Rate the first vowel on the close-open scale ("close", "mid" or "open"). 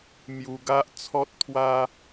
close